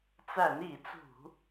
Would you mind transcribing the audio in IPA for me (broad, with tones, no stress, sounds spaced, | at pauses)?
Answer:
t͡s æ˧˩˧ n i˧˩˧ t͡s ṳ˧˩˧